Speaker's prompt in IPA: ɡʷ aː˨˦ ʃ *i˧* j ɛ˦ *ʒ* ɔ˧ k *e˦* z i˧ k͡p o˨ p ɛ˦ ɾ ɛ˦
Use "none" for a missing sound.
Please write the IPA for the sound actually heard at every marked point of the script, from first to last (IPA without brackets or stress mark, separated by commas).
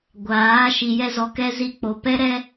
i˧, z, ɛ˦